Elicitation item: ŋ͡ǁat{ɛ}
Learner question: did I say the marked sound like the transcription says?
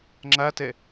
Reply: yes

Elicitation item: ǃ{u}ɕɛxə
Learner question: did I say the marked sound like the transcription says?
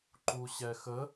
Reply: yes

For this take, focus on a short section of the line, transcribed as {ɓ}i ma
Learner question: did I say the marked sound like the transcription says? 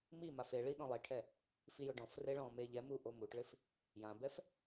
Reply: no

